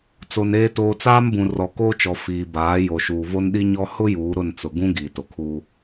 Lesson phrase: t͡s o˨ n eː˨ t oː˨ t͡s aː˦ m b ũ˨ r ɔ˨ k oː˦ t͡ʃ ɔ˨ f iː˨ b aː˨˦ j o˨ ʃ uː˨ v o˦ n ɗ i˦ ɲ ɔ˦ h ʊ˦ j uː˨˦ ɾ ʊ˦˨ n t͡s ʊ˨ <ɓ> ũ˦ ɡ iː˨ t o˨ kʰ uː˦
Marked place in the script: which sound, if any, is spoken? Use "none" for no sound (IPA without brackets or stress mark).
ɡ